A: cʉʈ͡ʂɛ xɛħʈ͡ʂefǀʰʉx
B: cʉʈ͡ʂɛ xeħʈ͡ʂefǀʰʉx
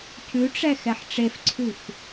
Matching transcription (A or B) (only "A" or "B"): A